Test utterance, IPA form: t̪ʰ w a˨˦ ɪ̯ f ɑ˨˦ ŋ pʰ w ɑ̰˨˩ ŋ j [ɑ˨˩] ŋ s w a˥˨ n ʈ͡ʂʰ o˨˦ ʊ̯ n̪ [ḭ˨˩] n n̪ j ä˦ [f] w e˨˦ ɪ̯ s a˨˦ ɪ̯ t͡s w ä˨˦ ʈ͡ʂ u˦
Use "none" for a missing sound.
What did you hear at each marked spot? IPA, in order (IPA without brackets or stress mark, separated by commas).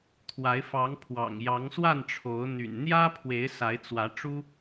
ɑ˨˦, y̰˨˩, pʰ